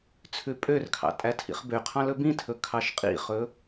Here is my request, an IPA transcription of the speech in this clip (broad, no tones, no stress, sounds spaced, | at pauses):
t͡sʰ ʉ pʼ ø r kʰ ɑ̰ tʼ æ tʰ ḭ χ b ø qʰ ɑ̃ l ɵ b ĩ tʰ ɵ kʰ ɑ ʃ qʼ ḭ χ ɵ